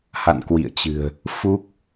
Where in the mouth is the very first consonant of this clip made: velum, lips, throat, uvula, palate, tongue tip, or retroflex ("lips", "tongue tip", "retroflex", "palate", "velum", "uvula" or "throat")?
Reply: throat